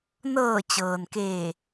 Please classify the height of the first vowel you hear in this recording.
mid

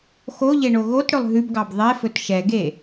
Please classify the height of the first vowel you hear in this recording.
mid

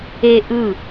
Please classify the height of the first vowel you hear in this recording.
mid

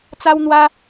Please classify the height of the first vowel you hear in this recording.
low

